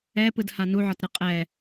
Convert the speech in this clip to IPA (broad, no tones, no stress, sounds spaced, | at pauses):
ɛ p ɯ d h a n u ʕ ɒ t ɾ ɨ qʼ ɛ